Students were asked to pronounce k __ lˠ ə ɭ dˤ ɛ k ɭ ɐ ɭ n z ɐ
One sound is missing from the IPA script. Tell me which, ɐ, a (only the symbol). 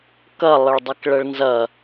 ɐ